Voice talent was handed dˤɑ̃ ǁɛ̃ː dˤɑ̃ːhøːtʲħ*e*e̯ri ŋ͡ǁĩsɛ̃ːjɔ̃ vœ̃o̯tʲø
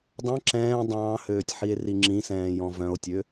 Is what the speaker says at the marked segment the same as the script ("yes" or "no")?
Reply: no